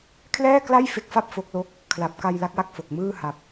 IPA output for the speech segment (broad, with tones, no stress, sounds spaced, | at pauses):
kʰ l ɛː˥˩ k l a˥˩ j f e˦˥ k̚ f a˥˩ p̚ f o˦˥ k̚ l o˥˩ k̚ | kʰ l a˨˩ p̚ k a˧ j l a˦˥ k̚ w a˥˩ k̚ f o˨˩ k̚ m ɯː˥˩ h a˨˩ p̚